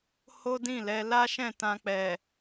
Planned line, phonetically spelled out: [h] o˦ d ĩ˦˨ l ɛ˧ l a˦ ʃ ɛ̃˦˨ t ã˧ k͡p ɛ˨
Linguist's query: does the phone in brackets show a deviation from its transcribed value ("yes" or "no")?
no